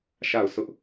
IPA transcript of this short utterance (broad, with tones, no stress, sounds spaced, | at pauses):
ʃ a˦˨ ʊ̯ s ʊ˦ ʔ